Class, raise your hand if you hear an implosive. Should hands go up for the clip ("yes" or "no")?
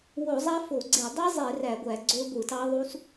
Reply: no